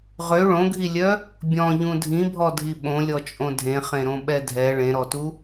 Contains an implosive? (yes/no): yes